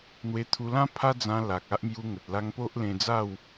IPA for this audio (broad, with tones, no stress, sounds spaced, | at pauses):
n̪ w e˧ t̪ʰ u˧ l ã˦ pʰ a˦ d͡z ã˧ l a˨ k̚ a˦ ʔ m j u˧ ŋ ə˨ t̚ l a˧ ŋ p o˦ ʔ l ẽ˧ d͡z a˥˧ w